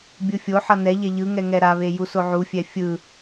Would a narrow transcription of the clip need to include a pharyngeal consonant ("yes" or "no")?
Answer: yes